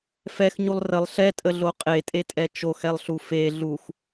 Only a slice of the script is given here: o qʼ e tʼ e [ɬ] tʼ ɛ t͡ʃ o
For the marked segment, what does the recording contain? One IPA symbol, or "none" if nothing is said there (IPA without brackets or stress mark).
none